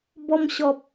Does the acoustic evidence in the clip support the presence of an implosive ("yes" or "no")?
no